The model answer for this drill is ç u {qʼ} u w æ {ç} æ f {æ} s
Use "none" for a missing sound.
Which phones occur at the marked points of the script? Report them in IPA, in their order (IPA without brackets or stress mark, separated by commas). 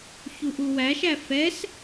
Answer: ʔ, ʃ, ɛ